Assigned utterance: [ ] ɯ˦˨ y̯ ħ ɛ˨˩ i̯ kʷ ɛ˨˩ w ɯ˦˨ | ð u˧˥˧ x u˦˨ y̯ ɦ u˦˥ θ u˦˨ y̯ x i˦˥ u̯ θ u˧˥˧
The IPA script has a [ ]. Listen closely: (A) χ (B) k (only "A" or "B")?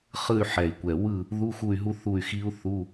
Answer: A